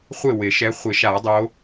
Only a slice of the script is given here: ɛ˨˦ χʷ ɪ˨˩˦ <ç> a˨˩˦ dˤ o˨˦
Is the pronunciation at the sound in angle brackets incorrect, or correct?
incorrect